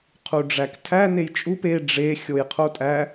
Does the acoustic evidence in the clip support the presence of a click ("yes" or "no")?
no